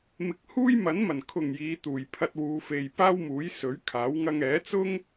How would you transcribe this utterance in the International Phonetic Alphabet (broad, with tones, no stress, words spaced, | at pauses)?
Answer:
mɪ˨˥k̚huː˥jmɐ˨˥nmɐ˨˩n kʰʊ˨˩ŋ jiː˨˧t̪uː˨˩j pʰɐ˧t̚wuː˨˧fe˨j paː˥wmuː˨˥jsɵ˨˥ɥkʰaː˨˥w ŋɐ˧ŋɛː˨˥t͡sʊ˥ŋ